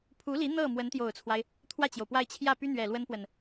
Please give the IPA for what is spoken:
pʰ u˧˥ l i˧˥ n̪ ɤ˥˩ m w ə˧˥ n t̪ j o˨˩ ʊ̯ t͡sʰ w a˦ ɪ̯ | t̪ʰ w ä˥˩ t͡ɕ j o˩ ʊ̯ p w a˥˧ ɪ̯ t͡ɕʰ j ä˥˩ p y˥ n̪ ɥ ɛ˨˩ l w ə˥ n p w ə˨ n

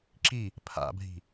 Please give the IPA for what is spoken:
ǁ i | pʰ a̰ bʱ i̤

